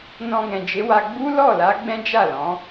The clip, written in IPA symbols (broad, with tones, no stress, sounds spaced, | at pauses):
n ɔ̃˧ ɡ ɛ̃˨ d͡ʒ e˨˦ w a˧ ɡ͡b u˦ l ɔ˦˨ l a˨˦ ɡ͡b ɛ̃˦ d͡ʒ a˦˨ l ɔ̃˨˦